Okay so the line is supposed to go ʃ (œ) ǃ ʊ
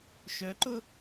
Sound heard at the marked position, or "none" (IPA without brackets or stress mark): œ